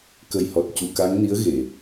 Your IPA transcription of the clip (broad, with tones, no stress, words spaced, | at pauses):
kə˨˩jhɔ˨˩t̚ cu˨˩˨ka˧˥ŋni˧˥ə̯ ɣe˨˩˨